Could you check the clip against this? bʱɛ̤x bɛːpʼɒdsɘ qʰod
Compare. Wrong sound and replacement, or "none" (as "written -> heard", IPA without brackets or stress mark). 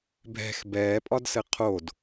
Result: none